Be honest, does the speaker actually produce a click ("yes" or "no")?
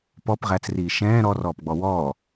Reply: no